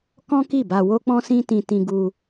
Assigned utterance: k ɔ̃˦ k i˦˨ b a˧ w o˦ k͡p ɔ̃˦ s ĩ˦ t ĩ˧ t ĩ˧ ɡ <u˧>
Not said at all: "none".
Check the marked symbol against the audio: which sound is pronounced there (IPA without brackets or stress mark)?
u˧